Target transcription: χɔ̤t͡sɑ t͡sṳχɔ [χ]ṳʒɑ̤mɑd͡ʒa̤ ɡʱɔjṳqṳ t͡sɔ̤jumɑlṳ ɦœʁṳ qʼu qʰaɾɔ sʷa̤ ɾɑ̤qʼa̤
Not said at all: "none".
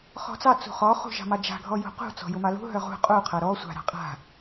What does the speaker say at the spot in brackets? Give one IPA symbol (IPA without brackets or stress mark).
χ